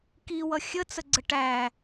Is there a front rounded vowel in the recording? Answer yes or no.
no